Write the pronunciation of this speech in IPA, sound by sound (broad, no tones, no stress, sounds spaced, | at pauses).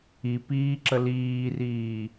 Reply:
i p iː ǁ ə l iː r iː